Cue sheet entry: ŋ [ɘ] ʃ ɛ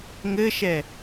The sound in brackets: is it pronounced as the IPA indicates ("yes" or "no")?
yes